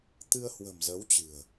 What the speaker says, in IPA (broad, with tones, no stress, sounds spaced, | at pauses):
t̪ ɨ˧ ə̯ h w ə̤˨˩ m z ə˨˦ w t͡ɕ ɨ̤˨˩ ə̯